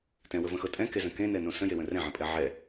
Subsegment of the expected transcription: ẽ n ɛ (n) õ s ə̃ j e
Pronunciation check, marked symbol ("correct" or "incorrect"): correct